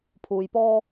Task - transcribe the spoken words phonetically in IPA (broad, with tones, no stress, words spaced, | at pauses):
pʰuː˨˧jpɔː˥